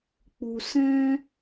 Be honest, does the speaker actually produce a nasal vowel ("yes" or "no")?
yes